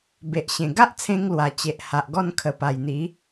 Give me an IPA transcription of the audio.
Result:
be˨ʔɕẽ˨˩ ɡa˦ʔt͡sʰẽ˧ŋ lwa˨˩t͡ɕe˨ʔ ha˨ʔɡɔ˥˧nkʰə˨˩ pa˨˩jn̪i˨˦

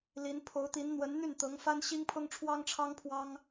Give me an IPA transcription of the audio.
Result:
li˧˥n pʰo˧˥ʊ̯t̪i˧˥n n̪wə˧˥nn̪y˥˩nt̪ɤ˧˥ŋ fa˥nɕi˥ŋpʰʊ˥ŋʈ͡ʂʰwɑ˥ŋ ʈ͡ʂʰɑ˥ŋpʰwɑ˥ŋ

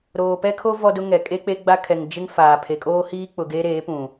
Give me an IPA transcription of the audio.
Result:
ɾoː˨pɛ˦kʰo˦ vɔ˦dʊ˦ŋɛ˨ kʼe˦k͡pe˦ ɡ͡ba˦kʰɛ˨ŋ d͡ʒɪ˦ŋ faː˨ pʰe˨kʼoː˦hiː˦ k͡pʊ˨ ɡeː˦ɾeː˨˦ pũ˨

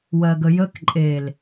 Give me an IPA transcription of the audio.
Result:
wɜɡəjək ǃʼel

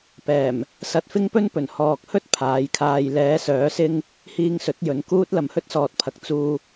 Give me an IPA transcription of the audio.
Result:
pɛː˨˩m | sɐ˧t̚fɪ˥ŋpɵ˥npɵ˨˩n hɔː˨k̚hɵ˥t̚ pʰaː˨˥jkʰaː˧j lɛː˨˧sœː˨˥sɪ˧ŋ | hiː˧ŋsɵ˨˥t̚jɵ˨˧n kuː˧t̚ lɐ˨mhɵ˥t̚sɔː˨t̚pʰɐ˨˥k̚ t͡suː˧

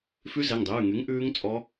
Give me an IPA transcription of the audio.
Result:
fʉ˦˥zɛ˩˧˩ŋdˤʉː˩˧˩ŋy˨˥ŋ ʔʉː˦˥ŋ t͡sʼɔ˦˥

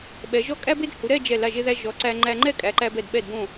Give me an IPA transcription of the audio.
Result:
ɓɛ˩˧ ʒɔ˥ kʼæ˥be˥d hu˩˧ɾɛ˥˧d͡ʒɛ˧˩ la˧˩ʒe˧ðæ˧ ʒɔ˩˧ǀæ˧ ŋ͡ǃæ˧ŋ͡ǃɛ˥˧ kʼæ˩˧ǃæ˧bɛ˧˩d ɓɛ˧˩dbõ˧˩

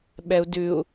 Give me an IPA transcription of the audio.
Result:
ɓɛu̯ dʉu̯

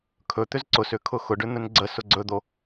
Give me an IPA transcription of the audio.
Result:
kʰɵt̪ʏz ǀʊsʏ kʰʊxʊɖʏ n̪ɵnɡ͡ǀəsʊ ɡ͡ǀɵd̪o

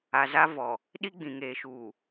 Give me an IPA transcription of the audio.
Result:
a˨ za˦vɔ˨ | ɗi˦ɡ͡bĩ˨ŋeː˨ ʃuː˨

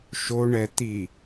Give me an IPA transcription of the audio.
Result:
ʃoɳɛ t̪i

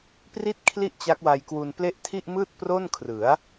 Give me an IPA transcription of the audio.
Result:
pri˥˩t̚kʰli˥˩ʔ t͡ɕa˦˥k̚wa˧jkwu˧nple˥˩ʔ tʰi˥˩ʔmɯː˥˩t̚pro˥˩nkʰrɯ˩˦a̯

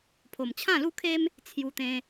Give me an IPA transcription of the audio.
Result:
pʰo˨˩mt͡ɕʰã˥˧lu˥˧kʰe˦m | t͡sʰju˧t̪ẽ˧

